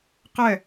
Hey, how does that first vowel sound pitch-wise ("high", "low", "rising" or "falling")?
falling